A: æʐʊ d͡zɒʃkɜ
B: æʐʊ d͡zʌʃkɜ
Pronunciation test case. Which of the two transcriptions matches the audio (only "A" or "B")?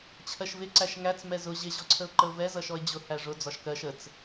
A